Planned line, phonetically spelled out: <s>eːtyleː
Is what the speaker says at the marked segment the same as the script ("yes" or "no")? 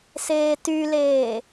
yes